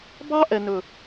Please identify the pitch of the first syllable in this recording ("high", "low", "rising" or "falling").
high